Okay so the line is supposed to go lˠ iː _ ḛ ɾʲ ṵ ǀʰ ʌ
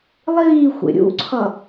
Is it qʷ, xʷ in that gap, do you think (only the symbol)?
xʷ